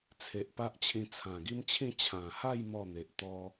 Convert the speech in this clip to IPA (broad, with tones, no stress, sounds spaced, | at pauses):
t͡sʰ e˨ ʔ p a˦ ʔ t͡ɕʰ ĩ˧ t͡sʰ ã˨˩ ɡ i˦ m t͡ɕʰ ĩ˥˧ t͡ɕʰ ã˨˩ h a˥˧ j m ɔ˥˧ n̪ e˨ ʔ t̪ ɔ˦